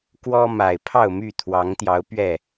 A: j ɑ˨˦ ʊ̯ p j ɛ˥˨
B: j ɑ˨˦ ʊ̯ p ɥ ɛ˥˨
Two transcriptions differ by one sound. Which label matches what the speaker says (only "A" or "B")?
B